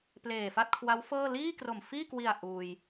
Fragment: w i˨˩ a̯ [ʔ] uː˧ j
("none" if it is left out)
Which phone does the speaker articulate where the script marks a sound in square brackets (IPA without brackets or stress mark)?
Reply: ʔ